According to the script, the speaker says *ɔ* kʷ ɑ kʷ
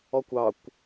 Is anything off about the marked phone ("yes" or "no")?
no